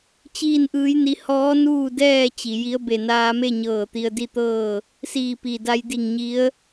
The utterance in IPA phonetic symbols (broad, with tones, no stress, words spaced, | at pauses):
t͡ɕiː˥˨nʔɯː˧˥jni˧ hɔː˧˥ nuː˥˨dɛː˥˨ t͡ɕi˩ji˧˥ə̯ be˧˩naː˧me˥˨ɲɤː˧˩ t̪i˧ə̯di˥˨t̪ɤː˥˨ | siː˧˩pi˩da˧j di˧˩ŋɲi˧˥ə̯